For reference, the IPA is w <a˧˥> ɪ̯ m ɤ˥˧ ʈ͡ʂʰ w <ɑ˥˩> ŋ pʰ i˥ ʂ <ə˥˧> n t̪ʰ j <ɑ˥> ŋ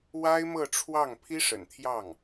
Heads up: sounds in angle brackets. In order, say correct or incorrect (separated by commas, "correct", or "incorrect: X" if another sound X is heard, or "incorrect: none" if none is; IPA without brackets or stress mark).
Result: incorrect: a˥, correct, incorrect: ə̰˨˩, incorrect: ɑ˥˩